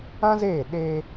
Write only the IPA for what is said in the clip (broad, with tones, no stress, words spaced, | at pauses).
ã˦zeː˦˨ ɗeː˧